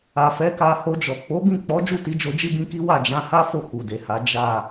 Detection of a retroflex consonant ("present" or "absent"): absent